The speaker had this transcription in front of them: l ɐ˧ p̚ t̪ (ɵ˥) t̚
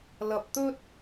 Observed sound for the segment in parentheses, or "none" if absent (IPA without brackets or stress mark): ɵ˥